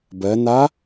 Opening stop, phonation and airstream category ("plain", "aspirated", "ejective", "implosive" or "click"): plain